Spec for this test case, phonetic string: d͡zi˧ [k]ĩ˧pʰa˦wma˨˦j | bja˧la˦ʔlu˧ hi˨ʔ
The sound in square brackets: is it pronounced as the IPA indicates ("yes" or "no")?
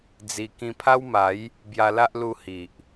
yes